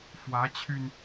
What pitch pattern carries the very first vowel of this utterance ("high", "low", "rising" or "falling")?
rising